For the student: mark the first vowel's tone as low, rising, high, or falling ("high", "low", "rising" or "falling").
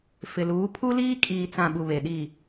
low